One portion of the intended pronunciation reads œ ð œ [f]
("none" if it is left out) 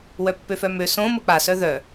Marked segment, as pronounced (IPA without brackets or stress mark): none